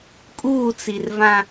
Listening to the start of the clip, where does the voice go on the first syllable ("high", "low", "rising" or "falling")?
falling